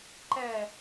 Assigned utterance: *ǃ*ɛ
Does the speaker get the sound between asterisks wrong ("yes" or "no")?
no